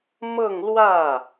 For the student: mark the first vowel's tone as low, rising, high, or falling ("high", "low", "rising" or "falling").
falling